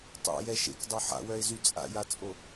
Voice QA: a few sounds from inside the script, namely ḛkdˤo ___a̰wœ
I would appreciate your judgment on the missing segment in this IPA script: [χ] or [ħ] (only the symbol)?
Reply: ħ